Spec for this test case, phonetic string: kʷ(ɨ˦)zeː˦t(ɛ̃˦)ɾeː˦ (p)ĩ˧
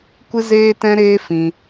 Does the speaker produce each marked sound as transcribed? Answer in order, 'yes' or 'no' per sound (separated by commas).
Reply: yes, yes, no